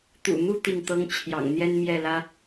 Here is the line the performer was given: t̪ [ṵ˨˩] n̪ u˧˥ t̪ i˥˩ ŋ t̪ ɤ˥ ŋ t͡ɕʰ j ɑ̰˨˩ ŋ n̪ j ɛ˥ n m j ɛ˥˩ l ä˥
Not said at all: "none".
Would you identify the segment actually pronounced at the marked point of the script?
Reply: ṵ˨˩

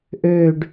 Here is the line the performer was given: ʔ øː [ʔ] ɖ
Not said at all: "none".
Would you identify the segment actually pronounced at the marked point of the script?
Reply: none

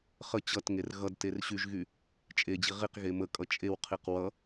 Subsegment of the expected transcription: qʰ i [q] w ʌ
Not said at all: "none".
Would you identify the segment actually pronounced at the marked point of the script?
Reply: q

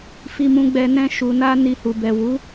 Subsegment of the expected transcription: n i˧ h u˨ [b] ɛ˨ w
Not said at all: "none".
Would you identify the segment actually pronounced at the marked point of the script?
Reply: b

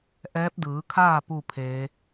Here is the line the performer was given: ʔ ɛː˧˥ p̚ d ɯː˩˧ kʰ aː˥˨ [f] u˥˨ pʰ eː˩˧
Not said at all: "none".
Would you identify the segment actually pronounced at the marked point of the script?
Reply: p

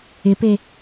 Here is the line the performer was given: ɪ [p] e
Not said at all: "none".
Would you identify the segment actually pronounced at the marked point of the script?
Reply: p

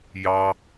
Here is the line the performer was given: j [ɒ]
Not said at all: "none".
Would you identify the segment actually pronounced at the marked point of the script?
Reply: ɑ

